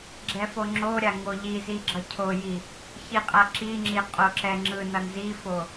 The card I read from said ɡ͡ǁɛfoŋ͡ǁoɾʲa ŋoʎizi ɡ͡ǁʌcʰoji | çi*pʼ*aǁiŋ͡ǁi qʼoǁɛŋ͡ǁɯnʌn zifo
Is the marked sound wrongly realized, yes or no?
yes